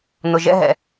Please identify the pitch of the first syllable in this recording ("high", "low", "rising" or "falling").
low